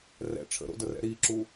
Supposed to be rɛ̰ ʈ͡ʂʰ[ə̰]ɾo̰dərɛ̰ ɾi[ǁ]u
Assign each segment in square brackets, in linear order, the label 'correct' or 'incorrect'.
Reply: correct, correct

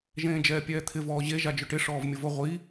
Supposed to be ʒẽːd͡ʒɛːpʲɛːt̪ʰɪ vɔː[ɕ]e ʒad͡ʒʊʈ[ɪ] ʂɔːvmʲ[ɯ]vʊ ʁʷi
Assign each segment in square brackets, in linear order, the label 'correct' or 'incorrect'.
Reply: incorrect, correct, incorrect

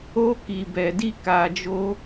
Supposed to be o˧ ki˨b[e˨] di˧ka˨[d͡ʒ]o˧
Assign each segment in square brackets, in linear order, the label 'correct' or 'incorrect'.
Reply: incorrect, correct

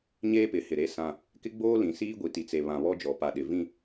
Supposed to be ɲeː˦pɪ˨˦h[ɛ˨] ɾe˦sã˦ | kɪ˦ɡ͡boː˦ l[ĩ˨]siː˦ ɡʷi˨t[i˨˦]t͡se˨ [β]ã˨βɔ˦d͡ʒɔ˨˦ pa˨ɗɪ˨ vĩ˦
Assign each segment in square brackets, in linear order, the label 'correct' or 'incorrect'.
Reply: incorrect, correct, incorrect, correct

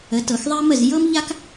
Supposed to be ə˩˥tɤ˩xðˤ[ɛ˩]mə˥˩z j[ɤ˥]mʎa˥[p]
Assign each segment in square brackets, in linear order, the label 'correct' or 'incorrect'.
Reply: incorrect, correct, incorrect

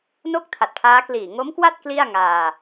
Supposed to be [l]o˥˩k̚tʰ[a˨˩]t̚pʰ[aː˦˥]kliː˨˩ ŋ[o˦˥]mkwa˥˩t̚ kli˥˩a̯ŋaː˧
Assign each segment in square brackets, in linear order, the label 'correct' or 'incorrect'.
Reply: incorrect, correct, correct, correct

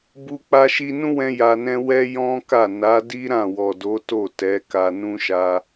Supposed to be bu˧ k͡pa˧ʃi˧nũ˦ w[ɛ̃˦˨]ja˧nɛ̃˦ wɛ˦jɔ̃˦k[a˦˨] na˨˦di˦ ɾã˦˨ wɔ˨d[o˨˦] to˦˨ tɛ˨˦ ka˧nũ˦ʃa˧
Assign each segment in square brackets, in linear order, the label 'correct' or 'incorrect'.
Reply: incorrect, correct, correct

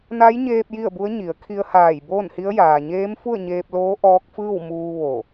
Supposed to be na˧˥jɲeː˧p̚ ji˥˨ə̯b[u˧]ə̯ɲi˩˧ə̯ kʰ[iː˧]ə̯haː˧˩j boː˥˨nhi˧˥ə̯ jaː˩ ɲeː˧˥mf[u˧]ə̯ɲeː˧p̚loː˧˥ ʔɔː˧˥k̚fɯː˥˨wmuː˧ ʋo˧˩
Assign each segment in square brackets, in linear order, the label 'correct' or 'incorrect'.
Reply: incorrect, incorrect, incorrect

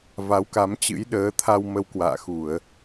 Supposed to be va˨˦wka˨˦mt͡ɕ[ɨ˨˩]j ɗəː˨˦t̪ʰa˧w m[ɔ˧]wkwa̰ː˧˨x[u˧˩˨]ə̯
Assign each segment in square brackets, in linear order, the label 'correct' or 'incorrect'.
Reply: incorrect, incorrect, correct

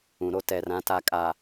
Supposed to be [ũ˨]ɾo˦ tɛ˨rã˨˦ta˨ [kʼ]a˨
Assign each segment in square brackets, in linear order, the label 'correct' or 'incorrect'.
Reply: correct, correct

